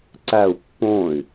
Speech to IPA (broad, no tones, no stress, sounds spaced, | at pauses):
ǀ æ u̯ pː õ y̯